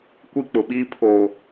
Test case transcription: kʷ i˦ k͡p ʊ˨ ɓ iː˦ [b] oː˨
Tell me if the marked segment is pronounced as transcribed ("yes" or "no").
no